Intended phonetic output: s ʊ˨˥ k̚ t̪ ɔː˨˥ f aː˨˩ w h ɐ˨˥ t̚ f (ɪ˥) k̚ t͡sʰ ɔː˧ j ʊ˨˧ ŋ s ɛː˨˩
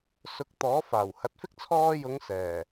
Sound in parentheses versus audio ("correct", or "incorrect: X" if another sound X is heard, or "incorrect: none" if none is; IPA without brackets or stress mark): correct